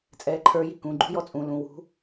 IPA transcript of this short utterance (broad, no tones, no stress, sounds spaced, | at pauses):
t͡sʼ ɛː ǃʰ ə˞ j i k ũ ɡ͡ǃ ṳ j ɔ t͡sʼ ũ l ũ w ṳ